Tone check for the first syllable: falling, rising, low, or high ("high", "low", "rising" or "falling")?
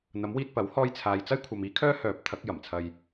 rising